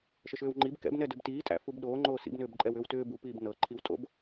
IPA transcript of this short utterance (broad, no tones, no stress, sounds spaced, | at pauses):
ʃ ə ʃ ʏː w ŋ͡ǃ i b k ɛ̰ b n ɛ d ʏ b t iː tʼ æ̰ f u b ɗ oː ŋ͡ǃ oː s ḭ b n ʏː b ǃʼ ɛ w ʏː w t ʏː b u p iː b n ɤ ǃʰ i w tʼ o̰ b